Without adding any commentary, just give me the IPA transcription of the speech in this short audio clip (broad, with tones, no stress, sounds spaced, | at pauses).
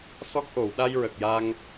s ɔ˦˥ k̚ ʔ o˨˩˨ w ɗ a˧ j ɹ ə˨˩ k̚ j a˧ ŋ